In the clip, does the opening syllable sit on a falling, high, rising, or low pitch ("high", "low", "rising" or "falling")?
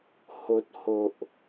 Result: low